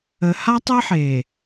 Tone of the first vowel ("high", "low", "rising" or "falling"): low